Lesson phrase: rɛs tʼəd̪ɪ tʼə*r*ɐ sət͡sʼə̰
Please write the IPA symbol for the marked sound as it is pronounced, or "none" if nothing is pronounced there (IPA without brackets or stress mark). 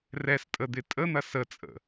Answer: n̪